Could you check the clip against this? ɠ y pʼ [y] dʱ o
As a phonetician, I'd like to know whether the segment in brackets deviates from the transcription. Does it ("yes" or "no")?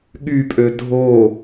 yes